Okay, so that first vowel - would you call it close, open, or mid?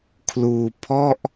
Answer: close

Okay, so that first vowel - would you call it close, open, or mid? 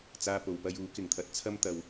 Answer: open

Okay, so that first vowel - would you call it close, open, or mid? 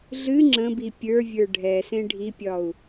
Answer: close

